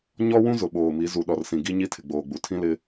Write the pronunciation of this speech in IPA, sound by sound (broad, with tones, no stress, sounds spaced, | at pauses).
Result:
ɲ ɔ˦ w ũ˦ z ʊ˨ ɓ oː˨ m i˨˦ z u˨ ɗ ɔ˨ r s ĩ˨ ɡ i˦ ɲ i˦ tʰ ɪ˨ ɡ͡b oː˨ ɡ͡b u˨ tʰ ĩ˦ l ɪ˦